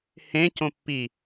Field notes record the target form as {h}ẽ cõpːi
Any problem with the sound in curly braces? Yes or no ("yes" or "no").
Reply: no